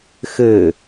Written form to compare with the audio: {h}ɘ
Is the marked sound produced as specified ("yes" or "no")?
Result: no